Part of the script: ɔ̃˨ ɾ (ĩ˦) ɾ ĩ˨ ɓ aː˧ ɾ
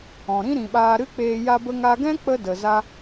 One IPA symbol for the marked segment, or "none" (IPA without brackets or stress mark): ĩ˦